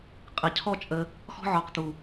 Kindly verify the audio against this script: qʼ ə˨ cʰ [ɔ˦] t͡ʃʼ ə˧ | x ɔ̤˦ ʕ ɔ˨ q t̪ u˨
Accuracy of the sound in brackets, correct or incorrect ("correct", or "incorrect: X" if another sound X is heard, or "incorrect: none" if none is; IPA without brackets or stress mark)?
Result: correct